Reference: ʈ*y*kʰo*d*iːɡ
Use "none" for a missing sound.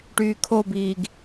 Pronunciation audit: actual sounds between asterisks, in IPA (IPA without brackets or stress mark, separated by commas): yː, b